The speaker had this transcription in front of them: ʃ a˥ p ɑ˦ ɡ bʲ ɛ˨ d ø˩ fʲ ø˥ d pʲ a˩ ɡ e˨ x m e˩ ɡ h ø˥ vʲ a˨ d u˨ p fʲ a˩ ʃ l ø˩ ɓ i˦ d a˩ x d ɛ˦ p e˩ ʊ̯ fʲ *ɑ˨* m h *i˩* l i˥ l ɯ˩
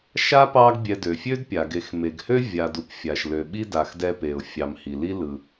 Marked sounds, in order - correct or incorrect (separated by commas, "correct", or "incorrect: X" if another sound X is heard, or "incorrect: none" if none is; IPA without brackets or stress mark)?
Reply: correct, correct